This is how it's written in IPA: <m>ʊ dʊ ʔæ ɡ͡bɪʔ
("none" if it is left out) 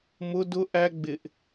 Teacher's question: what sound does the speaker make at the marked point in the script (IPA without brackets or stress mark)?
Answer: m